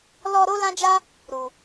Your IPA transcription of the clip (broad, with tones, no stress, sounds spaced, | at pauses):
l ɔ˧ ɾ o˦ l ã˦ d͡ʒ a˦ | ɾ u˨